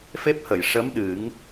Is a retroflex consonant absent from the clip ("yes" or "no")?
no